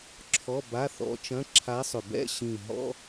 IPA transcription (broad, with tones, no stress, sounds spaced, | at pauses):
ǁʰ ɔ˧˥˧ b a˧˥˧ θ ɔ̰˧˥ t͡ʃ ɐ̃˧˥˧ ǁʰ a˧˥ sˤ ʏ˨˩ b ɛ̰˥˧ ɕ ĩ˨˩ ɦ ɔ̰˧˥˧